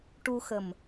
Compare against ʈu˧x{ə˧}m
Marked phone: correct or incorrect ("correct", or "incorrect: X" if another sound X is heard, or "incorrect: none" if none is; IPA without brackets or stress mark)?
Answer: incorrect: ə˨˩